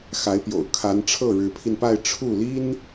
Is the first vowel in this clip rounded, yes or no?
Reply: no